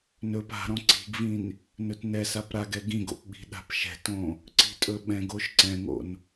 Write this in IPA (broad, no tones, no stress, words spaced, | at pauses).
nɵp a̤ɾɔ̃ ǀi̤ɡvĩn | nɵtnɛsap ɾaɡɛ ɡĩɡo̰p ɓi̤ɗa̤pʃɛ̤tõ | ǀi̤tʼɵɓɛ̃ɡoʃ ǀɛ̃ŋo̰n